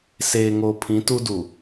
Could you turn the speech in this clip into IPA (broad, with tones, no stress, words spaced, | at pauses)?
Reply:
seː˨ŋo˨ pʰĩ˨˦tu˦du˨